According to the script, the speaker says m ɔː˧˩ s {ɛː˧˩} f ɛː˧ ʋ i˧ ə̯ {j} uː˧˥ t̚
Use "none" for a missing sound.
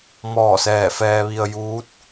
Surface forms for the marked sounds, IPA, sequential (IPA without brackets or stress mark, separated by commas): ɛː˧˩, j